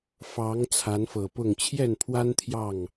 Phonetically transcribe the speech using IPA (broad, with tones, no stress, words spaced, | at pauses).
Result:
fɑ˨˦ŋ t͡sʰa˨˦nfɤ˨˩pʊ˥˨ŋ t͡ɕʰjɛ˥˨npʰwa˦n t̪ʰjɑ˥˨ŋ